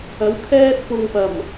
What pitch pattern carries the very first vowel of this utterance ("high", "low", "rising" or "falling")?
rising